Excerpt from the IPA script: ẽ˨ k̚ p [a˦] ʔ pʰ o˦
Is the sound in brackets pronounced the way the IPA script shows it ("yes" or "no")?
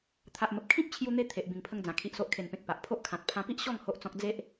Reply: no